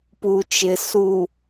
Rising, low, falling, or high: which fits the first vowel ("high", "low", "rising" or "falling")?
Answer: low